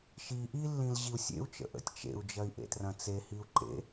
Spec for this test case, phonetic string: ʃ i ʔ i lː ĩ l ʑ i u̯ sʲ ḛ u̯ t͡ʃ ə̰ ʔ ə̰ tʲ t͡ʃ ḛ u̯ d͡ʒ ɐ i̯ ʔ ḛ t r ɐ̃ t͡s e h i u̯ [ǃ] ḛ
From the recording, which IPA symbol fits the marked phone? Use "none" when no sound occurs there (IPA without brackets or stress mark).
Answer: ǃ